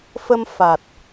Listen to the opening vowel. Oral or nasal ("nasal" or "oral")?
oral